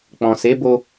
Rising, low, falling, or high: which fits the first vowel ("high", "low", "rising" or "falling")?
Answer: low